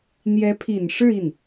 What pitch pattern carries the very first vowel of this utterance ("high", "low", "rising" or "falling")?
rising